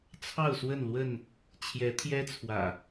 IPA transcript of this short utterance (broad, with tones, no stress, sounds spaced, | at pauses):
t͡sʰ ɑ˥˨ ʊ̯ s w ə˥˨ n l w ə˥˨ n | t͡ɕʰ j ɛ˨˦ t̪ʰ j ɛ˦ t͡sʰ w ä̰˨˩